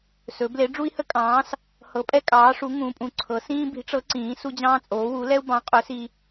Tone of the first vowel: rising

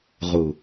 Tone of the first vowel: low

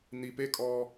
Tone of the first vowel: low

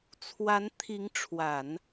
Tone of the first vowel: rising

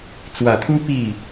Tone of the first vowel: low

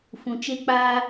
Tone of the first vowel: low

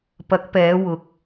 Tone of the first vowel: rising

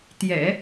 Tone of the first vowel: low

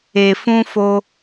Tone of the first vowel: low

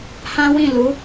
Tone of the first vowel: high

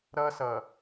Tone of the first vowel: high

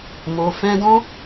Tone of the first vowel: low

